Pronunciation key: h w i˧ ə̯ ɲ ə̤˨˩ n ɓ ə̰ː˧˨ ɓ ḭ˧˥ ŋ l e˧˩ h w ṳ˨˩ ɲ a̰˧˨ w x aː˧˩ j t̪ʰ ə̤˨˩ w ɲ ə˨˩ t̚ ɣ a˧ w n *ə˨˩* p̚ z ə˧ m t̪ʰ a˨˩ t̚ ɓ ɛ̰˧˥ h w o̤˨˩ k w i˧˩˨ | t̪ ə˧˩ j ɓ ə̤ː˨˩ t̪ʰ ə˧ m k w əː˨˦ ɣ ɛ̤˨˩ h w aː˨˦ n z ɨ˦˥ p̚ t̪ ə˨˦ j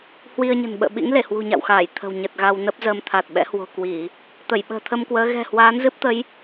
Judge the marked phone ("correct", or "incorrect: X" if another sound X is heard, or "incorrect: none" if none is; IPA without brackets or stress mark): incorrect: ə˦˥